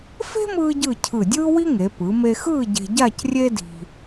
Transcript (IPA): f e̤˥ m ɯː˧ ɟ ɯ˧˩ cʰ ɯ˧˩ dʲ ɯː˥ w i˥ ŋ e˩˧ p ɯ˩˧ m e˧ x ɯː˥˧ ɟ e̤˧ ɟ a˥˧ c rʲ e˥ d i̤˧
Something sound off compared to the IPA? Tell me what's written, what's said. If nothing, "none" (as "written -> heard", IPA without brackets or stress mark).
none